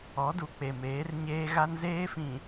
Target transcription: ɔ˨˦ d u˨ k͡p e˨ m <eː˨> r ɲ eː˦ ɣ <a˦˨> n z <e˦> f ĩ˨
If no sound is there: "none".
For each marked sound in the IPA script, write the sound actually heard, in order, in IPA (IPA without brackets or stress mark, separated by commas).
eː˨˦, a˦, eː˦